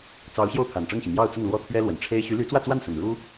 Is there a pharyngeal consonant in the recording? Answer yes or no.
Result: no